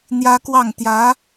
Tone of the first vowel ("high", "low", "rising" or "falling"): high